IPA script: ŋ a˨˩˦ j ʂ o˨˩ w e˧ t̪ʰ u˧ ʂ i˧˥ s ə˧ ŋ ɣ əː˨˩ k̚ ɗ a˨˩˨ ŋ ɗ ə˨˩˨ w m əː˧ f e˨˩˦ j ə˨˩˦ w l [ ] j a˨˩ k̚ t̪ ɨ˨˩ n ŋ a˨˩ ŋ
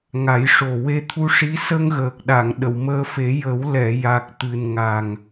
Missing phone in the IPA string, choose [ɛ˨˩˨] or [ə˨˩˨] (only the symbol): ɛ˨˩˨